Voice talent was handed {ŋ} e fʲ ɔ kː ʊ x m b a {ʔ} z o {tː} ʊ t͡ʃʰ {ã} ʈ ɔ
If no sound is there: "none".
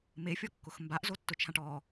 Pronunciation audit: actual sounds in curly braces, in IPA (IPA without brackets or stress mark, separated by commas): m, ʔ, tː, ã